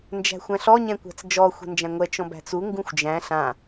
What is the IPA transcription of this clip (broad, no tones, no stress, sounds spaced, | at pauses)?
n d͡ʒ æ̤ xʷ æ̃ ɬ ɔ ɲ ɛ̃ kʷ æ̤ t͡s d͡ʒ ɔ xʷ ɛ̤ n d͡ʒ æ̃ ŋʷ ɛ t͡ʃ ɔ̃ b æ̤ t͡s u ŋ ɡ ũ xʷ d͡ʒ æ̃ ɬ ã